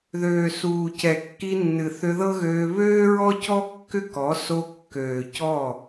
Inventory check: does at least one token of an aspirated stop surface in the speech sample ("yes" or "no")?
no